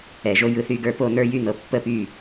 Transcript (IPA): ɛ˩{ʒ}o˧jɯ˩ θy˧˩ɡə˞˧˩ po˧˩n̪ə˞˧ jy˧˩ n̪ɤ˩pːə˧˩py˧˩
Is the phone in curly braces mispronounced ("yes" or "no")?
no